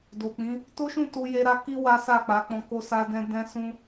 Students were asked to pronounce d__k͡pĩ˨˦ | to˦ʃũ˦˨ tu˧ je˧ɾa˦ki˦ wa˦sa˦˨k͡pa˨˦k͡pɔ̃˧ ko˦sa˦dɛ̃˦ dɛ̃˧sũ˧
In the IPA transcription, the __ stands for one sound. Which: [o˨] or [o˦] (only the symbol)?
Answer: o˨